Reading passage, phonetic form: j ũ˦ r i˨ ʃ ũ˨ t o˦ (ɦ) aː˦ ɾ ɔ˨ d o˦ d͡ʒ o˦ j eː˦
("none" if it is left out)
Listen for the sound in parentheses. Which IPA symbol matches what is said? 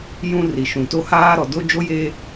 h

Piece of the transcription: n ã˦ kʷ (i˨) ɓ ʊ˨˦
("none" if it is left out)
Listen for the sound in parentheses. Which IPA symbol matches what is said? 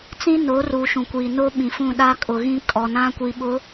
i˨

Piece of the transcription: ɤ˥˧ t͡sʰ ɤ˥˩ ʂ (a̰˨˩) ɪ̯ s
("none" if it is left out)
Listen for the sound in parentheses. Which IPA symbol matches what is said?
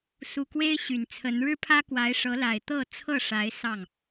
a˧˥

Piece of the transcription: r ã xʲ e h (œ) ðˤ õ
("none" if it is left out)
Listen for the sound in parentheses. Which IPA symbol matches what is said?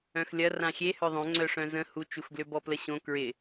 œ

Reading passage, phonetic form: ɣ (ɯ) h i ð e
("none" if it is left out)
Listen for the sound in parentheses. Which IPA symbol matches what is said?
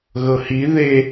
ɤ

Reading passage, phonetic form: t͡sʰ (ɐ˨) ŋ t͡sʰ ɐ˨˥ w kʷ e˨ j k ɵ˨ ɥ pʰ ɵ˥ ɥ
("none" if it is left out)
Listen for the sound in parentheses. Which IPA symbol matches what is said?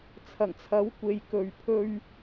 ɐ˨˩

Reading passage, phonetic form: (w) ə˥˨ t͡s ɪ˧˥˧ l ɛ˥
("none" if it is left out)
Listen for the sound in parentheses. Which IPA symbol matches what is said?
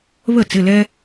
β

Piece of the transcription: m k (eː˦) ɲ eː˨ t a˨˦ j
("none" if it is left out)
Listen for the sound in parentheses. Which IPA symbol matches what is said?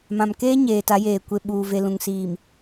eː˦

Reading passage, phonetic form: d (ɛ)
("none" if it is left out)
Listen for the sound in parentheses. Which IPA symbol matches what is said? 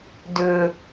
ʏ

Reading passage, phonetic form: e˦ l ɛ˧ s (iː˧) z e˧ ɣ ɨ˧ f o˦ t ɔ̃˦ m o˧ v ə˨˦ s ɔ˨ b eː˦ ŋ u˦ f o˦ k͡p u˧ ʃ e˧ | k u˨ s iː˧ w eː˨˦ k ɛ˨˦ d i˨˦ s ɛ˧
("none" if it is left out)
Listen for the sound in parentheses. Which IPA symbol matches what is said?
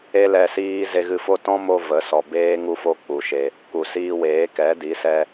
iː˦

